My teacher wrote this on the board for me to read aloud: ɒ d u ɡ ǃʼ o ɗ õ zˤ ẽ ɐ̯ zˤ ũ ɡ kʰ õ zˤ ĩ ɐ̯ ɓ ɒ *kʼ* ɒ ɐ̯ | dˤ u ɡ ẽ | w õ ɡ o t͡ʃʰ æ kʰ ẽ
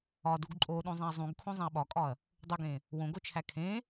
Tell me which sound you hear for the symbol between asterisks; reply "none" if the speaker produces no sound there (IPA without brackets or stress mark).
kʼ